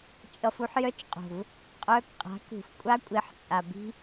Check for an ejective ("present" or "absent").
present